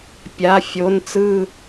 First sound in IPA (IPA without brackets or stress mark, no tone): pʲ